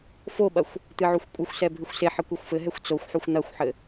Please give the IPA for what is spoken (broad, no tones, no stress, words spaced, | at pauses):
foɓɐxʷ | t̪ɨʕuxʷkʷʼɨxʷsɛ bʱɨxʷseħɘ kʷexʷfɘɦɛxʷ t͡soxʷħuxʷ n̪ɐxʷħɘ